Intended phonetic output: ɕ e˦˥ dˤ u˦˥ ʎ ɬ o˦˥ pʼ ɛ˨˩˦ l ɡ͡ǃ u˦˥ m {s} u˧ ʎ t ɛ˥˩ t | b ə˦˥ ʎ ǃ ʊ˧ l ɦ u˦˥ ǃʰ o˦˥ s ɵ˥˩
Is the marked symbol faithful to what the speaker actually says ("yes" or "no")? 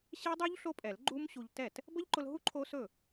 no